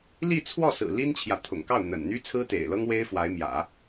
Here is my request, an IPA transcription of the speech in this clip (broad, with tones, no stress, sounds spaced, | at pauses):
l i˥˧ t͡sʰ w ɔ˥˩ s ɹ̩˨˩ l i˥ n t͡ɕʰ j ä˨ t̪ʰ ʊ̰˨˩ ŋ k ɑ˥˩ ʊ̯ n̪ ə̰˨˩ n n̪ y˥ t͡sʰ ɹ̩˥ t̪ ḛ˨˩ ɪ̯ l ɤ˥ ŋ w e˥ ɪ̯ f w a˧˥ ɪ̯ m j ä̰˨˩˦